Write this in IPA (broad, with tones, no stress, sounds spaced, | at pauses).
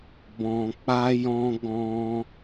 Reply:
b ɔ̃˨ k͡p a˧ j ɔ̃˧ ɡ ɔ̃˧